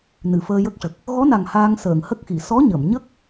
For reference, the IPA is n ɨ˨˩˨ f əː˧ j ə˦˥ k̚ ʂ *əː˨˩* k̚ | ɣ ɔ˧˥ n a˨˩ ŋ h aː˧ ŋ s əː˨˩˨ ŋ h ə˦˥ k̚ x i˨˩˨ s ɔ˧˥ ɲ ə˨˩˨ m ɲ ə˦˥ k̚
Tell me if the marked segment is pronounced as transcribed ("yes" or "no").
no